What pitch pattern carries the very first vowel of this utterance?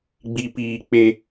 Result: low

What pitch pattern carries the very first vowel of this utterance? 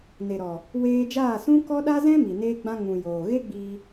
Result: low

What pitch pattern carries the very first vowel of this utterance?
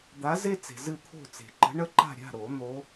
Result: rising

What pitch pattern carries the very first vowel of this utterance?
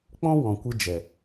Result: high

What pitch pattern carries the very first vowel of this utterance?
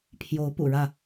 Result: rising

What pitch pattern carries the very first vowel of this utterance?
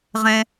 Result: high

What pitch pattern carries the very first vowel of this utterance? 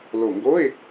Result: low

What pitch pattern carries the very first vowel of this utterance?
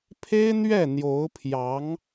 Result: high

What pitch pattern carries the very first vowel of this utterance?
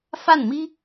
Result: falling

